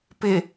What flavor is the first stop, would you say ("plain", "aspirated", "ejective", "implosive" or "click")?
plain